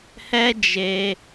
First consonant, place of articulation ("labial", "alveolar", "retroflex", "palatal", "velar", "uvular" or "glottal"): glottal